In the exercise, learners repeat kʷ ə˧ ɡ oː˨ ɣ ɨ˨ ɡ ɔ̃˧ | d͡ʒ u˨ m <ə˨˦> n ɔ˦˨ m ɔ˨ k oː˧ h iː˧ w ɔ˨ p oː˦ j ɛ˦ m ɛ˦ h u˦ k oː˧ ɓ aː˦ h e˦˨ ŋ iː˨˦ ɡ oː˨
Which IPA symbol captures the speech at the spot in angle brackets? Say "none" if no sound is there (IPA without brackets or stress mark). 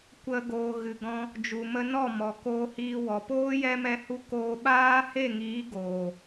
ə˧